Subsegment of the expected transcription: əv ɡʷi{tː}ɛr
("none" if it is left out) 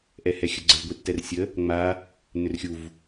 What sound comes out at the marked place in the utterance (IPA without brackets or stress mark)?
tː